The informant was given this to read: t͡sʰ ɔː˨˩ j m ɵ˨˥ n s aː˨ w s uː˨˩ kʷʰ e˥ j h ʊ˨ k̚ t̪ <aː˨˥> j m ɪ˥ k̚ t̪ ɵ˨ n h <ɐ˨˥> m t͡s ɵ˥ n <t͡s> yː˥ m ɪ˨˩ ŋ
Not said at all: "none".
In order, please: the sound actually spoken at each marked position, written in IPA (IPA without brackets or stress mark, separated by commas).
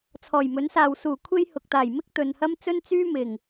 aː˨˩, ɐ˥, t͡s